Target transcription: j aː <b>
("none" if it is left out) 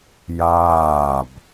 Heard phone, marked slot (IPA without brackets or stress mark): b